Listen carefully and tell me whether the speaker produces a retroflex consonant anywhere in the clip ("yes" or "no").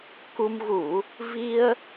no